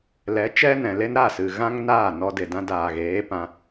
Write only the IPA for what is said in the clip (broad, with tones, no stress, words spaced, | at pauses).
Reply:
lɛ˨˦t͡ʃɛ˦nɛ̃˨le˦n ɾa˦˨sɨ˨ ɣã˦ŋnaː˦˨ nɔ˧de˨dã˧daː˨ ɣeː˨˦pã˧